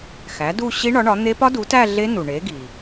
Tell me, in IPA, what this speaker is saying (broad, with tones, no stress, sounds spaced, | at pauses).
x æ˩˥ d u˥˧ ɕ i˦˥ ɳ ɒ˩˥ ɳ ɒ˩˥ n̪ e˦˥ p ɒ˦˥ d u˩˥ t æ˥˧ ɮ e˦˥ n u˩ ɳ e˩˥ ɡ i˩